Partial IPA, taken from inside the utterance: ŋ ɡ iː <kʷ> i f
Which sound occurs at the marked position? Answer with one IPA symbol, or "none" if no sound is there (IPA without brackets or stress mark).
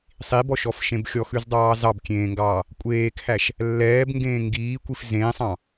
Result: kʷ